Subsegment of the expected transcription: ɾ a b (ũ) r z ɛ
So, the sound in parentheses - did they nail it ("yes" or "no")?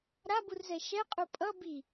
no